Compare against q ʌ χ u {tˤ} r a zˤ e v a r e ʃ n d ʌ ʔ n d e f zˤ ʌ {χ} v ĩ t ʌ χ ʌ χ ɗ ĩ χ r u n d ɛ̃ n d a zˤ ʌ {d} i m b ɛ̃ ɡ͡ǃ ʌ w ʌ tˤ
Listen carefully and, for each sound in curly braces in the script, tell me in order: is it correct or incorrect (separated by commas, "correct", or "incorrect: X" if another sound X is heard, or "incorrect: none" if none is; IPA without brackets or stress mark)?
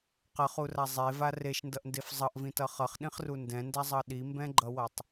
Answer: incorrect: none, incorrect: ʔ, incorrect: ɗ